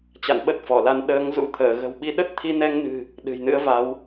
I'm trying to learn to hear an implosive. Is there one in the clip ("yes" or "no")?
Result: yes